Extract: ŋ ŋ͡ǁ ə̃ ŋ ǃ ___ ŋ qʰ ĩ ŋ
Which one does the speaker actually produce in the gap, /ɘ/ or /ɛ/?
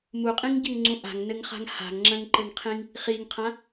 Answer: ɘ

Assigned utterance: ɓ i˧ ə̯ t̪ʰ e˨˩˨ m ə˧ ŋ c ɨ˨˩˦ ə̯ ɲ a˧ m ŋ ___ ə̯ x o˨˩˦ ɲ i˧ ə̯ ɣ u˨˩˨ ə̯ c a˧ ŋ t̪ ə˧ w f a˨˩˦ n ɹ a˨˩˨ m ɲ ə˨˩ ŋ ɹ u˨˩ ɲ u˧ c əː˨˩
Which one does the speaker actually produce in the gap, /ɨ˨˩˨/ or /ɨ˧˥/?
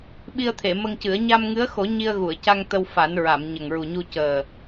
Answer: ɨ˧˥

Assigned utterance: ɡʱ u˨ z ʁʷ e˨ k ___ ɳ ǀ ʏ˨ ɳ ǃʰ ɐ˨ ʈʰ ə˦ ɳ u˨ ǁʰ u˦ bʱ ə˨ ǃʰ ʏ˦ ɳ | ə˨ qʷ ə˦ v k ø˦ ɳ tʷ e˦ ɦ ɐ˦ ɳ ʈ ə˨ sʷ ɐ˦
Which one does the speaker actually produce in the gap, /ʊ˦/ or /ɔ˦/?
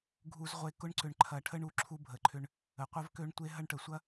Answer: ʊ˦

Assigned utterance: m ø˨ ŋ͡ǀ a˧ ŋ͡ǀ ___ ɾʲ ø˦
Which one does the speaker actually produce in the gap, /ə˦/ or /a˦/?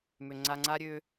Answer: a˦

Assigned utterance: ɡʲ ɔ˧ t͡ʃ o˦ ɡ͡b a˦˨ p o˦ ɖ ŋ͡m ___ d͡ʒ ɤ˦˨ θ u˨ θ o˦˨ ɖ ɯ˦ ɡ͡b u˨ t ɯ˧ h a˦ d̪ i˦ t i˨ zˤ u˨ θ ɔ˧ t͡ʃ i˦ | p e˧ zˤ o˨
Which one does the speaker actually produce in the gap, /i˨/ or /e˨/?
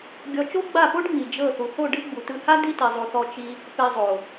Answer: i˨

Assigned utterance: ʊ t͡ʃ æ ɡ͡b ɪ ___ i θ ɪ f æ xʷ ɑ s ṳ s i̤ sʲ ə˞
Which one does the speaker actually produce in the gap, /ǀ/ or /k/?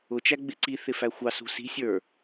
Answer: ǀ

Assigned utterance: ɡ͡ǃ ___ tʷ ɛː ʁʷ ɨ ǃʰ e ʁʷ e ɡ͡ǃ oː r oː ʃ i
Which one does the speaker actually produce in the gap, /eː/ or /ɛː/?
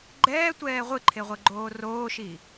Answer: ɛː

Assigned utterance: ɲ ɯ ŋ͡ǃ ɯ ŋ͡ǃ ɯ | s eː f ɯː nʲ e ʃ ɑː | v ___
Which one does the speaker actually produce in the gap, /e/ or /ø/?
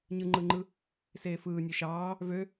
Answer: ø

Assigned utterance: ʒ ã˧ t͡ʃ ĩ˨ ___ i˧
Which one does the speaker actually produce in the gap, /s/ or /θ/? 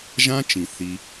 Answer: θ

